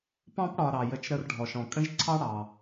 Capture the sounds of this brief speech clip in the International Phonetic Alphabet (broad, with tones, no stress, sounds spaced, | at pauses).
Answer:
p ɑ̃˥ p ɽ ɒ˨ ɾ ɑ˩ j ə˩ t͡ʃ ɾ ə˨ r ɖʱ ɔ˩ ʃ ɔ̃˩ kʼ ə̃˦ ʒ ǀʰ ɑ˦ ɽ ɑ˩